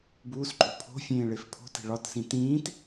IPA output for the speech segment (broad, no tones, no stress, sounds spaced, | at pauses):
b uː s ǃʼ o̤ pʰ o̤ fʲ ẽː ɭ e f pʰ o̤ t e̤ ɭ ɒ t s ĩ t ĩː t